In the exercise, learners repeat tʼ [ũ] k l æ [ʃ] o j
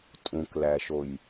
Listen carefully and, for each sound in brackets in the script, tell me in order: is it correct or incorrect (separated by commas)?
correct, correct